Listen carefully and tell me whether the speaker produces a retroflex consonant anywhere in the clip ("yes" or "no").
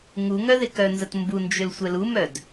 no